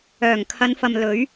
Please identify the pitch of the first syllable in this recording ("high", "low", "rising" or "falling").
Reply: low